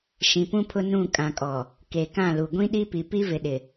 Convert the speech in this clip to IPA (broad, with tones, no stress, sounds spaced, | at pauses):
ʃ ĩ˨ p ũ˦ pʰ ʊ˦ n ũ˦˨ kʼ ã˨ kʼ ɔ˨ | k e˨ k ã˦˨ l u˨ ɡʷ ĩ˦ ɗ i˦ p i˨ p i˦ v ɪ˨ ɗ ɪ˨